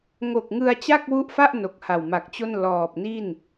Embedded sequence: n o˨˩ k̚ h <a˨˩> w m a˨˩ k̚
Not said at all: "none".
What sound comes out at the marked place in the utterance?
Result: a˨˩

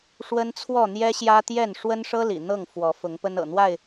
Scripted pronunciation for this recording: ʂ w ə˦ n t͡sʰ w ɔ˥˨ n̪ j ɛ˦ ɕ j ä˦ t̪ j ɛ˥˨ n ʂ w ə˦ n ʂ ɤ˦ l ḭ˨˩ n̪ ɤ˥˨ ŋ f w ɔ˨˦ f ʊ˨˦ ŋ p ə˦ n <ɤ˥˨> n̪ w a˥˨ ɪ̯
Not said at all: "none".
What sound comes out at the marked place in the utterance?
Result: ɤ̰˨˩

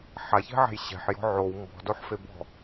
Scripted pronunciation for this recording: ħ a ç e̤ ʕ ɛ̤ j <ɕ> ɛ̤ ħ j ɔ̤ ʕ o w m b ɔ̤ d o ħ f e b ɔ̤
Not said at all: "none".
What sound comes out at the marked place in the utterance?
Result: ɕ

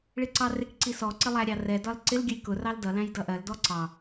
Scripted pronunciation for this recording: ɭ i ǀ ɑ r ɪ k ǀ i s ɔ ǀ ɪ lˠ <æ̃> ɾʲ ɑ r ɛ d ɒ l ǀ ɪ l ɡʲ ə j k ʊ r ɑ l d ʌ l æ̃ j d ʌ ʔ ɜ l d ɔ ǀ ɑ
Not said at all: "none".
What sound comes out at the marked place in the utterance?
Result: æ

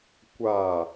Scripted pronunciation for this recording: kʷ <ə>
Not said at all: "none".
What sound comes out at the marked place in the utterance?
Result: a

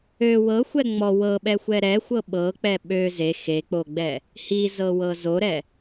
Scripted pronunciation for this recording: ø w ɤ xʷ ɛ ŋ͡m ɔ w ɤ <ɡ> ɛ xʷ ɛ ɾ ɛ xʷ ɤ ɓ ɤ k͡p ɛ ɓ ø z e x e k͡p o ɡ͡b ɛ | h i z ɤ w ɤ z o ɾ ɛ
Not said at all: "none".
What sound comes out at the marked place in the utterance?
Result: ɓ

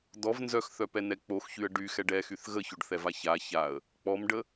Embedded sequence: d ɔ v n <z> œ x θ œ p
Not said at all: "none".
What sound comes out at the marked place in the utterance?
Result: z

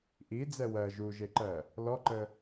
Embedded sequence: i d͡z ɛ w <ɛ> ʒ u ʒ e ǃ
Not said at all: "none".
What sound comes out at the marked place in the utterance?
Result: ɜ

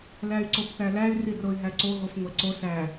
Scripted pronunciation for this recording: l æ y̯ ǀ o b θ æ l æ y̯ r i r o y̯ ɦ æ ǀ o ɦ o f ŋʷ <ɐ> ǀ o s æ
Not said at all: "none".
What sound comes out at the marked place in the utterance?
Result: æ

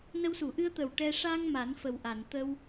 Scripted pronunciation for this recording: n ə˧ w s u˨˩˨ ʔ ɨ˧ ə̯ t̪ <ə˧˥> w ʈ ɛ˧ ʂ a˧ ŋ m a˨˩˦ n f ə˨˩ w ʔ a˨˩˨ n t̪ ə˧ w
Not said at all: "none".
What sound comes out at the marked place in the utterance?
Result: ə˨˩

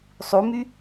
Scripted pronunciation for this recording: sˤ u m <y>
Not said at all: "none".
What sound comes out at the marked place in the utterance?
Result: y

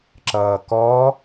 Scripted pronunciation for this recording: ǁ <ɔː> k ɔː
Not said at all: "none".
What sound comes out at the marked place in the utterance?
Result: ʌː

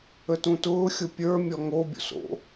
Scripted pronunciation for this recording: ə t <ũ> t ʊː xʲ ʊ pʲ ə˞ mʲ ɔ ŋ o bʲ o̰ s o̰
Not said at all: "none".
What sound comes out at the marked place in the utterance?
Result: ũ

